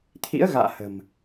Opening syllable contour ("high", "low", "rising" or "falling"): rising